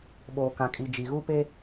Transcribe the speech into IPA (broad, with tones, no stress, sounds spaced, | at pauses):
ɓ oː˨ k ã˨ kʼ i˨ d͡ʒ i˨ ɣ u˦ p e˦